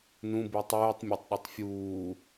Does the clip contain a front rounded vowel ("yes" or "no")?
yes